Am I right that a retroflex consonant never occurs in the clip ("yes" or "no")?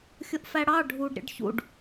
no